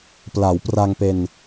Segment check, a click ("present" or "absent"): absent